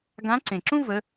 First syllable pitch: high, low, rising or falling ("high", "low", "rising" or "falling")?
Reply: rising